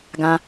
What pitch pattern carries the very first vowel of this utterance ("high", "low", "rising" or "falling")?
high